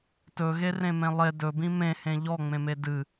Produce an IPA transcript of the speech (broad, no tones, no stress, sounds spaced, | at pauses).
t ɵ ɣ e r ẽ m ẽ lˠ e d ɵ b ĩ m ẽ h ẽ ʎ ɔ ŋ͡m ẽ m e d ɨ